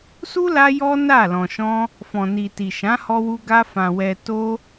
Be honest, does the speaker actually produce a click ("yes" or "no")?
no